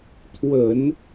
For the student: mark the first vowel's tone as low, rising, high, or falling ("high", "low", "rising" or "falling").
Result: low